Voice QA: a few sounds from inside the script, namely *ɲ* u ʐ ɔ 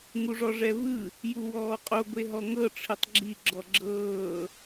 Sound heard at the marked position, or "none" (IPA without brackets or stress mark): ŋ